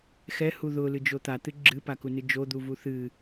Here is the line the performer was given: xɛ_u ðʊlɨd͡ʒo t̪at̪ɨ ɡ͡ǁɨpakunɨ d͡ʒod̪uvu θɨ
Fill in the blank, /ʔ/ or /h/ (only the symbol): h